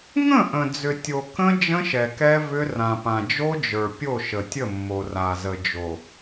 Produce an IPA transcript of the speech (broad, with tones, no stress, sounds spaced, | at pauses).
ŋ ə̃˦˨ ʔ ə̃˨ d͡z ʏ˨ tʲ o˨ k ə̃˦ d͡ʒ ə̃˦ ʃ ɛ˨ k ɛ˦ v ʏ˦ r ã˨ p ã˨ d͡ʒ o˦ d͡ʒ ə˞˨ pʲ o˦˨ ʃ ə˨ tʲ ə˦˨ mː o˨ r a˨ z ə˨ d͡ʒ o˨